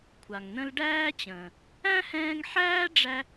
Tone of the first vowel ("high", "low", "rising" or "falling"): low